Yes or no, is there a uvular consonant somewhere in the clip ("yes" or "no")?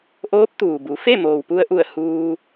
no